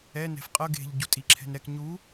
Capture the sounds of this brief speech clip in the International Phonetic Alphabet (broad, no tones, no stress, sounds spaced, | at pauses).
ɛ n ɛ̤ f qʼ ɤ ɡ e̤ ʎ ɟ u tʼ i ǁʰ ɛ̤ n ɾ ɛ k ɲ u